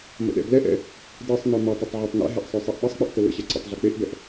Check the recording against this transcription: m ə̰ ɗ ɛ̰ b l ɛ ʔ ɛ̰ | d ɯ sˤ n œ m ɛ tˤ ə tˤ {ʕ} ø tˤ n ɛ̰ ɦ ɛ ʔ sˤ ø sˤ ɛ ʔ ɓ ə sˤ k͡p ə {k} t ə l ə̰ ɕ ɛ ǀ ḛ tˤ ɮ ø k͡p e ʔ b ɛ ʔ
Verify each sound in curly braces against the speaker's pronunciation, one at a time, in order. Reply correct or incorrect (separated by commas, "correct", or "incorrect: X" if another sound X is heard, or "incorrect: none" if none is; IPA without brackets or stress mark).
correct, incorrect: ʔ